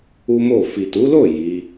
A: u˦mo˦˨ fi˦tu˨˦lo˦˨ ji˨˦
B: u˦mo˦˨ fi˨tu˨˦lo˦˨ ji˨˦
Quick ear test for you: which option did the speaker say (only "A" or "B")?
B